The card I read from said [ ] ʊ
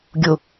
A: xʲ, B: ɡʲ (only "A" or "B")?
B